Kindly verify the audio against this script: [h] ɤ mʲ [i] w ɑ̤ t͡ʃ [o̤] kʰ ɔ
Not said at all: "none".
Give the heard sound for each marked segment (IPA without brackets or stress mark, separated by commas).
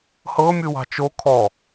h, ɨ, o